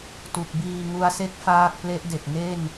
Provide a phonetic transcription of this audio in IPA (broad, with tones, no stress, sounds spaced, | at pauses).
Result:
t u˨˩ k̚ b iː˧ ŋ u˧ a̯ s e˥˩ k̚ f aː˥˩ k̚ p l e˦˥ ʔ d e˨˩ k̚ n e˥˩ n